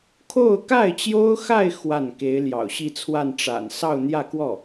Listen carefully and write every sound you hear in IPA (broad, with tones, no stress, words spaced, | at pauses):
kʰo˥˧ʊ̯ka˥˩ɪ̯t͡ɕjo˥ʊ̯xa˥˧ɪ̯ xwa˥˩n ke˧˥ɪ̯ljɑ̰˨˩ʊ̯ɕi˥˧t͡sʰwa˥˩n ʈ͡ʂa̰˨˩nsɑ˥˧ʊ̯n̪jä˥˧kwɔ˥˩